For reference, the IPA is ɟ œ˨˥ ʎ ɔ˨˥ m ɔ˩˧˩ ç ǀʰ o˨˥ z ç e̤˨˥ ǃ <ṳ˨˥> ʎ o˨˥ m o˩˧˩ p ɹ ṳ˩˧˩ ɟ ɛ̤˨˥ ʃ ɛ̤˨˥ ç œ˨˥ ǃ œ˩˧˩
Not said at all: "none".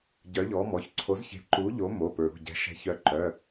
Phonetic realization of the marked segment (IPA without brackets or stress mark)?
u˨˥